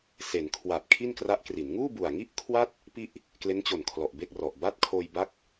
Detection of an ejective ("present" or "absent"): absent